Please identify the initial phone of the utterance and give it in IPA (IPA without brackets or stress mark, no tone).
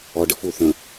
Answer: ɔ